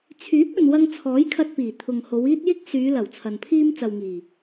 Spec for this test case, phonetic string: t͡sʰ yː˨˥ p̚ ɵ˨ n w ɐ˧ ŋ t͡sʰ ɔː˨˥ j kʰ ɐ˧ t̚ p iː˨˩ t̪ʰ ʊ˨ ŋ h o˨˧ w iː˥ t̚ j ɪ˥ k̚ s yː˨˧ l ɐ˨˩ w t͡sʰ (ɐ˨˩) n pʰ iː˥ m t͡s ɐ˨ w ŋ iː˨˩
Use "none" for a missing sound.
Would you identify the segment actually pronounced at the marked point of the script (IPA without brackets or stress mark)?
ɐ˨